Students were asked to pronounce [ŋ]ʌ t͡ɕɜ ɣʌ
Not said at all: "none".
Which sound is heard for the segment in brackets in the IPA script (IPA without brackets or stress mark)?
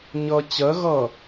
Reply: ɲ